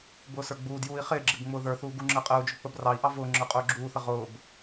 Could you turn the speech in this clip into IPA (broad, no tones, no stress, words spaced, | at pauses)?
bʊːsə˞ɡ͡buːdjuːi̯ χɪːɡ͡ǁɪb ŋ͡mʊːðə˞θuː ɡuŋ͡ǁəːqʼəːu̯d͡ʒʊ k͡pəbrɑi̯ʔɑ vʊː ŋ͡ǁə˞qʼʊːɡ͡ǁuːθə ʁʊːb